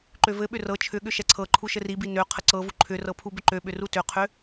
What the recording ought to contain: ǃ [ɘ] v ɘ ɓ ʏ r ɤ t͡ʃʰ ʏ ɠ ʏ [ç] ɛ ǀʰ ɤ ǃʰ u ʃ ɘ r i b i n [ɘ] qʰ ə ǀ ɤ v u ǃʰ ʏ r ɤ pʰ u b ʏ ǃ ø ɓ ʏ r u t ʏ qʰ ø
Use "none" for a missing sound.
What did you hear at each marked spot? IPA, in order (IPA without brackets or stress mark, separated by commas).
ø, ʃ, ø